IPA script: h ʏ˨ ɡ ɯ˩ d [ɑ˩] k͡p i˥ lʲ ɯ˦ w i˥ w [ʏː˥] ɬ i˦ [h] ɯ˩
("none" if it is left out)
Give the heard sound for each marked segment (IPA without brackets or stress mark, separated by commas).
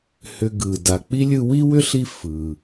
a˩, ʏ˥, f